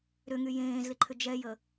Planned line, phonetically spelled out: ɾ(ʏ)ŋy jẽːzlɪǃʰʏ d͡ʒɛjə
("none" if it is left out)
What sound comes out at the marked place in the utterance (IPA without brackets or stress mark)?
ʏ